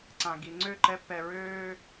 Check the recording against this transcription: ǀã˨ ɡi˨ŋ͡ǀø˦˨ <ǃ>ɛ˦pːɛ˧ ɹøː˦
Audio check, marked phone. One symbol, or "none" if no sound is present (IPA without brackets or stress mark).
ǃ